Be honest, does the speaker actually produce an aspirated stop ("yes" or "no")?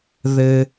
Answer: no